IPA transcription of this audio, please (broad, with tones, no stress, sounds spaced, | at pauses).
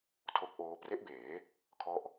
tʰ o˦˥ k̚ ʔ oː˦˥ p r e˦˥ ʔ b eː˩˦ | kʰ ɔ˥˩ ʔ